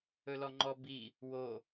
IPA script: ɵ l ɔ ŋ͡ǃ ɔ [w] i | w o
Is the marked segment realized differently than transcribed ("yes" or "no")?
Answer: yes